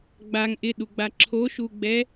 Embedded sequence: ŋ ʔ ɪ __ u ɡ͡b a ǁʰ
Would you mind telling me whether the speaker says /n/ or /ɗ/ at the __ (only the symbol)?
ɗ